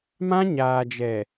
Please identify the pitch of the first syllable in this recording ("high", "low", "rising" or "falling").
high